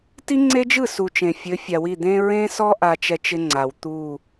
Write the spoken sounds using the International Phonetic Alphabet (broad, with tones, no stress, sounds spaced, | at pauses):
t i˦ ŋ͡ǀ e˦ d͡ʒ ɯ˦˨ s u˨ t͡ʃ ẽ˨ fʲ ɘ˨˦ fʲ a˨ w i˦˨ d̪ ẽ˦ ɹ ẽ˦ s ɔ˦ ʔ a˦ t͡ʃ ɛ˦ t͡ʃ ɪ˦ ŋ͡ǀ a˨ w t̪ u˦˨